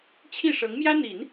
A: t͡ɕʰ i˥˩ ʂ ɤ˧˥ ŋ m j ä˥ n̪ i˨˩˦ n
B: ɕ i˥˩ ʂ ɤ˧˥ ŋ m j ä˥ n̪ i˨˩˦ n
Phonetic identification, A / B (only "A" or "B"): A